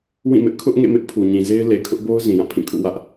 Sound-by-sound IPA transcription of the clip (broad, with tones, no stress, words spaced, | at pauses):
wĩ˦˨mɪ˦ʔ kʰʊ˦ʔ ŋḛ˦˨mɪ˦ʔ pʰu˨ɲĩ˨ze˦ɪ̯ le˨kʰʊ˦ʔbo˦ʊ̯ zĩ˨jã˦˨pʰĩ˦˨kʰṵ˦˨ wä˦ʔ